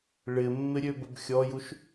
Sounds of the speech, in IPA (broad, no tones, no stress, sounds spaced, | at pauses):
ɭ ɪ mː ɪ ɾʲ ø b ə b xʲ ɔ j u ʃ